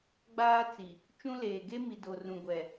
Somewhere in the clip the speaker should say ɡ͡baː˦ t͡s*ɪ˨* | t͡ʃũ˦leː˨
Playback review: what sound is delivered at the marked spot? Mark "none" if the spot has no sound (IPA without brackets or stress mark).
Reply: i˨